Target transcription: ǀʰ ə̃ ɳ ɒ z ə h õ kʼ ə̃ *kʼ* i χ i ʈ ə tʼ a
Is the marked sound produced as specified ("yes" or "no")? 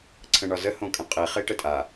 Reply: no